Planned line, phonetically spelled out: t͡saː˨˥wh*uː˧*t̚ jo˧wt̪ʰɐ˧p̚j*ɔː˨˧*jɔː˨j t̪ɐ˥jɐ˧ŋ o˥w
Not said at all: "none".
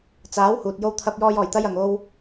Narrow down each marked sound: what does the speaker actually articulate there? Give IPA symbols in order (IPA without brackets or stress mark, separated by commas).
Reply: uː˨, ɔː˧